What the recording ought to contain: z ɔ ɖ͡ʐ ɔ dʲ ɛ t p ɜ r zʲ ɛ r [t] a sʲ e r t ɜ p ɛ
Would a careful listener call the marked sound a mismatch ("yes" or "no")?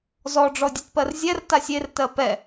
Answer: no